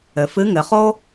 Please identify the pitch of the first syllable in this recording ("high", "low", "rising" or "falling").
low